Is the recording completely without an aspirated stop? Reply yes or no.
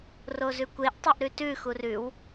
yes